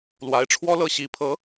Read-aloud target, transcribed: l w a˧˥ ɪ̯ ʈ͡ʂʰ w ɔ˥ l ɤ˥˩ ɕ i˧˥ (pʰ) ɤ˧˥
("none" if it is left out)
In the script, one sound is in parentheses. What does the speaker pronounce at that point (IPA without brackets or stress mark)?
pʰ